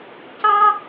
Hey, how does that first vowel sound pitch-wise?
high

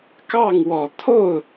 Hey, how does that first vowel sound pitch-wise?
falling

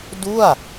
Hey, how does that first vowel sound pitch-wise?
falling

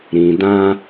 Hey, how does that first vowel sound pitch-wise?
low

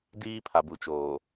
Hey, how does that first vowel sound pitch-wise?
high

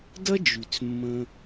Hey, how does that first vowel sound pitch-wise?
high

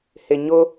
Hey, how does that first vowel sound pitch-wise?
low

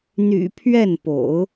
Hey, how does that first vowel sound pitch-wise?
low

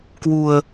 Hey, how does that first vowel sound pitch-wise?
low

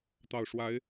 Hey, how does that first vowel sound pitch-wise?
low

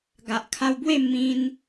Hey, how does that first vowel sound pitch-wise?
low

